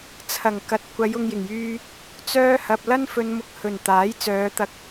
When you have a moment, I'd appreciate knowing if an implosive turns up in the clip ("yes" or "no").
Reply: no